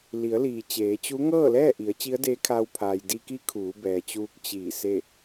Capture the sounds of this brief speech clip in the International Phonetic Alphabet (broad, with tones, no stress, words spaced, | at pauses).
li˩˧ə̯liː˩t͡ɕeː˩˧t͡ɕu˧˥ ŋɤː˥˨lɛː˥˨ʔi˩˧ə̯ t͡ɕi˧˥ə̯deː˧˥kʰaː˧wpʰaː˩j di˧ki˧˥ kʰuː˩˧bɛː˩t͡ɕuː˧k̚ t͡ɕiː˧˩se˥˨